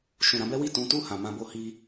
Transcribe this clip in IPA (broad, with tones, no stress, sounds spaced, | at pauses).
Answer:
ʃ ũ˨ ɾ ã˧ b ɛ˦ w i˦˨ t ũ˨˦ t u˦˨ h ã˨ m ã˧ b o˧ h i˧